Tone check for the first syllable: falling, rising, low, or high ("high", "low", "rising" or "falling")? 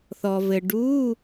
low